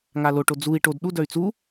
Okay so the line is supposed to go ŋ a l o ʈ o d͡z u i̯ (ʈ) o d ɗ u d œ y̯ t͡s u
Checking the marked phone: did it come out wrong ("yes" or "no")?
no